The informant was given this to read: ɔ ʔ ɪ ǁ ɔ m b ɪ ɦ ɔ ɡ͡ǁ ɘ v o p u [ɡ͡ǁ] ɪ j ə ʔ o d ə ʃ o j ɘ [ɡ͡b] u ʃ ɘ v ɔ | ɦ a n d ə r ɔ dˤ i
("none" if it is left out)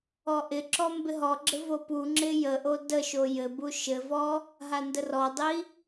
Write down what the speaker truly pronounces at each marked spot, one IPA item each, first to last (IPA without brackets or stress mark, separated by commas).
ŋ͡ǁ, b